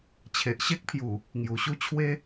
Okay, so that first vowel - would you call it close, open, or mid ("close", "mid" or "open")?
mid